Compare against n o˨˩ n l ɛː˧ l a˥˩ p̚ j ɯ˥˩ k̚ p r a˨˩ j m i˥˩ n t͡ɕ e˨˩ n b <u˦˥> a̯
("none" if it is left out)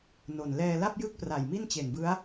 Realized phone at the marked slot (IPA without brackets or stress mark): ɯ˦˥